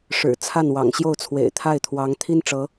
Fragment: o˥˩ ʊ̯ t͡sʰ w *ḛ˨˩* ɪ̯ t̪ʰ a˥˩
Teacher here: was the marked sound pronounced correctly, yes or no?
yes